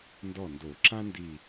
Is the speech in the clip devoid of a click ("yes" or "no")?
no